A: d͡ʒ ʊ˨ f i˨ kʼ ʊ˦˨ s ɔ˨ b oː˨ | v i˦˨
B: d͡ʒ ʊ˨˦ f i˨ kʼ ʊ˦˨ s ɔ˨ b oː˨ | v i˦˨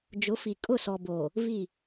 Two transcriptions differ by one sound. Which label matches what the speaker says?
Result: B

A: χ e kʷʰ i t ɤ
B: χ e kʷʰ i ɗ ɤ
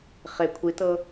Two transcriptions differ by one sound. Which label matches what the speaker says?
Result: A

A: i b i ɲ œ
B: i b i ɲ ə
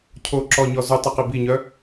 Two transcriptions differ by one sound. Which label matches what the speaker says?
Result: A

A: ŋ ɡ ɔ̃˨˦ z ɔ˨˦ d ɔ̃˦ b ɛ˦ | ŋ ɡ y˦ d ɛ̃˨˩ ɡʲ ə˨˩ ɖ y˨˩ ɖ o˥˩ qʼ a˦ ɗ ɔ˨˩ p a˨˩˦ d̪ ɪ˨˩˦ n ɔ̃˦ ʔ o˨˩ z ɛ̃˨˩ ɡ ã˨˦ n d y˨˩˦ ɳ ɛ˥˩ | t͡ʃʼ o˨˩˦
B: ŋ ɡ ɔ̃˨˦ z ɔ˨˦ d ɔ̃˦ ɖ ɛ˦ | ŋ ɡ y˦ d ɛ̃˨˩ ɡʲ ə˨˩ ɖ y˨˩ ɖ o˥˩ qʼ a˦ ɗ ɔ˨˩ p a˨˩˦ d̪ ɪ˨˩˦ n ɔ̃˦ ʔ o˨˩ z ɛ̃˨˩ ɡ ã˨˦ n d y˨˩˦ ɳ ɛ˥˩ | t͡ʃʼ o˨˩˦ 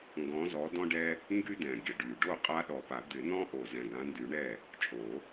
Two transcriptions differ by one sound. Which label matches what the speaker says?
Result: B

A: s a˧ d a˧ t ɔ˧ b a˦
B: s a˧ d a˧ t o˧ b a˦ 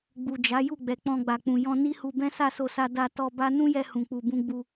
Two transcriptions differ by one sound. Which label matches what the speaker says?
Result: A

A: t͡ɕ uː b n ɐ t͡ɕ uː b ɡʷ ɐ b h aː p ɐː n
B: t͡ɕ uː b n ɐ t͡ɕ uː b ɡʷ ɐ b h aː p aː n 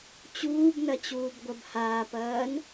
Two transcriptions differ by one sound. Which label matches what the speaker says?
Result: A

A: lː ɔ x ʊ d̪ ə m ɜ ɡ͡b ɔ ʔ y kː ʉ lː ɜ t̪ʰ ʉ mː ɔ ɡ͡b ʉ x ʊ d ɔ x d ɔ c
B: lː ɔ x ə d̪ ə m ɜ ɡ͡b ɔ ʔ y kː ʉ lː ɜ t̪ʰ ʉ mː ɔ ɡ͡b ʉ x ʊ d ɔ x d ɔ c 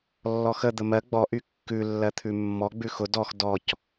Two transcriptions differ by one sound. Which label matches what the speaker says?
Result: B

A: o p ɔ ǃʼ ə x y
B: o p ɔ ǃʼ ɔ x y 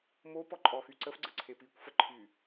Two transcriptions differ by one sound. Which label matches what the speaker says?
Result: B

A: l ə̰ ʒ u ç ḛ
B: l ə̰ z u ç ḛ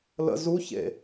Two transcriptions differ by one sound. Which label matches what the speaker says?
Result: B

